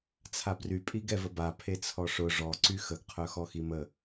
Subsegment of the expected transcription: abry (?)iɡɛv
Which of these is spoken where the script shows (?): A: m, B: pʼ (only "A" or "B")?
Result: B